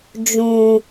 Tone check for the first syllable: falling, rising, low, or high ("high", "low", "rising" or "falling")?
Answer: low